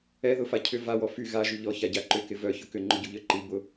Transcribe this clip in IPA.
ɛ ð ʊ f a cʰ ʏ v a w ɔ f y ɣ a ʒ y ʎ ɔ ç a ɟ a ǃ ʏ k ɪ v œ ç ʊ k ʏ ŋ͡ǃ ʊ ɟ u ʎ œ ǃ i b ʊ

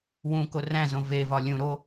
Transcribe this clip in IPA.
w ũ k o r æ̃ z õ v e v ɒ lʲ ũ ɾ o

